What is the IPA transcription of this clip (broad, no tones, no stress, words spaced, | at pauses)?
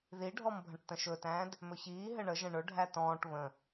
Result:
ðiɖʱɔmbʱə̃ʈ tə̃ʃɵtæ̃ːd | mɵçiː ɦɘɳəʒə̃ ɳɵɖʱæ tɔ̃ːʈ βə̃